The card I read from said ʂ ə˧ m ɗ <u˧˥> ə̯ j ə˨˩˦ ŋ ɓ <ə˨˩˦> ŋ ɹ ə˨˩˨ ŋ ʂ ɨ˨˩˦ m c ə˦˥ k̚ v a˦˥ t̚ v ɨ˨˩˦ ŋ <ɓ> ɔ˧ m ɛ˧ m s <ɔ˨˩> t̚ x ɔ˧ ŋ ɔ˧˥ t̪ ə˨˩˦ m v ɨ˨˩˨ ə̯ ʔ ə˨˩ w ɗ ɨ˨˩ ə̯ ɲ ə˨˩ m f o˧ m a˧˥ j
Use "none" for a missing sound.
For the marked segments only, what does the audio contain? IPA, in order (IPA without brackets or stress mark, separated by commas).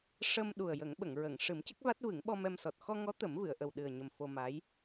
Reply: u˨˩, ə˨˩˨, ɓ, ɔ˨˩